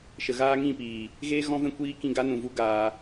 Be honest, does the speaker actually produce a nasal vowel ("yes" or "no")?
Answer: yes